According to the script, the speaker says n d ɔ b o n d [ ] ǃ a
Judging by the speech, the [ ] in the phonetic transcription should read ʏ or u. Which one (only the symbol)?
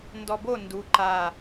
u